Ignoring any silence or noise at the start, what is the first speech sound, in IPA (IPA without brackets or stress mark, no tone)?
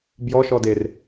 b